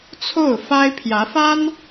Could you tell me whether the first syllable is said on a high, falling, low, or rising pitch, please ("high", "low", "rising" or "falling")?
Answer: falling